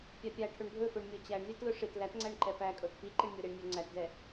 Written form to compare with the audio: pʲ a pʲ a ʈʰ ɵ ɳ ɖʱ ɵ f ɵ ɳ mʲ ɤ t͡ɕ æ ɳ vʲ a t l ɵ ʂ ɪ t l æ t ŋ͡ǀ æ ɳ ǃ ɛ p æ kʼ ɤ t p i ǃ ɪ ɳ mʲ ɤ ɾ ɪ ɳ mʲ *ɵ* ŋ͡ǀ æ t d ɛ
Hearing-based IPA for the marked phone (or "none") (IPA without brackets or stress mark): ɵ